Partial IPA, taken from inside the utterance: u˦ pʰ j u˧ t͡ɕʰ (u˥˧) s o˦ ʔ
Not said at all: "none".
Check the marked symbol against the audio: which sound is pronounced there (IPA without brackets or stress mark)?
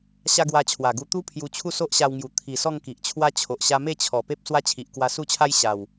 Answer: u˥˧